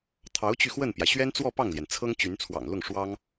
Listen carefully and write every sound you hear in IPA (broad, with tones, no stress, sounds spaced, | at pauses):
t̪ʰ ɑ˧˥ ʊ̯ t͡ɕ y˧ x w ə˥˩ n p j ä˩ ɕ ɥ ɛ˥ n t͡s w ɔ˥˧ p ɑ˥˩ ŋ l j ɛ˩ n t͡sʰ ɤ˥ ŋ t͡ɕ y˧˥ n t͡sʰ w ɑ̰˨˩ ŋ l ʊ˥˩ ŋ ʂ w ɑ˥ ŋ